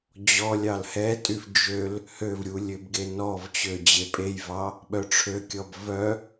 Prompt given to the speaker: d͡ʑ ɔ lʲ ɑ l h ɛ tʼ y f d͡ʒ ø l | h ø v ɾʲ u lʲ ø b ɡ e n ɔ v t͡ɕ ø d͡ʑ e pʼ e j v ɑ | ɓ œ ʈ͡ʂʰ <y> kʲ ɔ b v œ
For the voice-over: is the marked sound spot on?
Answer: no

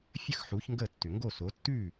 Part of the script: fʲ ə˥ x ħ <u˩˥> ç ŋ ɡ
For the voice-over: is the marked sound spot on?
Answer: yes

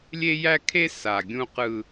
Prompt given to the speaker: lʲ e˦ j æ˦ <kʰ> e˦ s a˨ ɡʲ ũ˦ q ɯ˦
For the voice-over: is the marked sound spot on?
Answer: yes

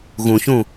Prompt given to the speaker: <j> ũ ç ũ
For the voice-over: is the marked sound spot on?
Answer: no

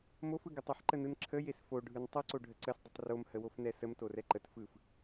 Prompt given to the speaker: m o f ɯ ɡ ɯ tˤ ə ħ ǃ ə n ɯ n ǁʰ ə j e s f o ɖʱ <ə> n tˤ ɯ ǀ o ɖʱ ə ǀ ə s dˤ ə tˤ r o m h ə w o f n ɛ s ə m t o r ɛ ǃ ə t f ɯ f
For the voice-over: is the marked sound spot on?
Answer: no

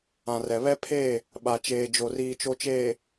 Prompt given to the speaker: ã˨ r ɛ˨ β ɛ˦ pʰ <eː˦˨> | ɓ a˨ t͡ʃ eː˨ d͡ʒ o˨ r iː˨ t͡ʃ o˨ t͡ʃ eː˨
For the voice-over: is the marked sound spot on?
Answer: yes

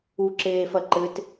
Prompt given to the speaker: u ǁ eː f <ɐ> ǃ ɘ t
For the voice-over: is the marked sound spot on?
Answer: yes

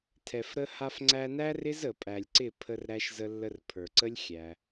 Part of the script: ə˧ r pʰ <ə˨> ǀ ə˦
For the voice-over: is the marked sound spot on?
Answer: no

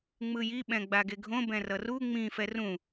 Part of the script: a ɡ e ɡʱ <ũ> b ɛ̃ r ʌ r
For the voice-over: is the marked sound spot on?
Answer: no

